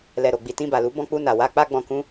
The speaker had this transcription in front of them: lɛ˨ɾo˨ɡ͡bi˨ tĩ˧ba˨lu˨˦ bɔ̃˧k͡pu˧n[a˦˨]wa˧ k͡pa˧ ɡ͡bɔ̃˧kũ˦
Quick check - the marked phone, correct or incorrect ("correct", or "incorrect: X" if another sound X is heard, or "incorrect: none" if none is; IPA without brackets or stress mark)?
incorrect: a˨